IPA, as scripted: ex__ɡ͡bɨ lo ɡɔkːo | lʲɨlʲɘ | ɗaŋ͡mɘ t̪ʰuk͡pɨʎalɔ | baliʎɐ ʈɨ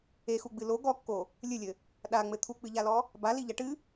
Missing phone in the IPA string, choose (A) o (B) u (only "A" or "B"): B